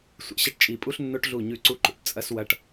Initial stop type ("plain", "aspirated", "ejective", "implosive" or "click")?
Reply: plain